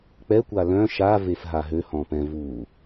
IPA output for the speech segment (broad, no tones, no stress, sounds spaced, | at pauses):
k͡p ɛ kʷ a l œ̃ ʃ a v e f ɦ a ɦ ø h ɔ̃ p ɛ̃ v uː